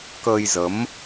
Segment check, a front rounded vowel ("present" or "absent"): absent